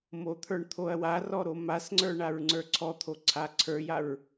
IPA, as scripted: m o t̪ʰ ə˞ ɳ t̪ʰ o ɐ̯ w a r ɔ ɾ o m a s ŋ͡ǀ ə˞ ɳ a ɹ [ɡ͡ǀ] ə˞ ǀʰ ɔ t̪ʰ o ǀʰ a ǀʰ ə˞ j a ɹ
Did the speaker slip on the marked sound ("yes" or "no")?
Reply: yes